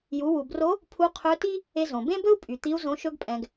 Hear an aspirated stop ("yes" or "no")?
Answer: yes